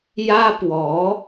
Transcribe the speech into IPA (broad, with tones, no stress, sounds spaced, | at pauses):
j ä˥ p w ɔ˧˥